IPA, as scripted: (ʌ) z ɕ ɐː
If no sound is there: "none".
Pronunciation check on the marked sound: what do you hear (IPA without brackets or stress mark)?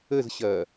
ə